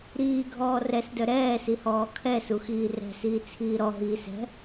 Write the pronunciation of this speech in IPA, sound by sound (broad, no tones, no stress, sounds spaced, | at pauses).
ɾ iː ɡʱ ɔː r ɛ s d œ ɾ ɛː s i h ɔː kʰ ɛ s u x iː r ɛ̤ s iː t͡sʰ iː ɾ ɔ ɦ iː s ɛ̤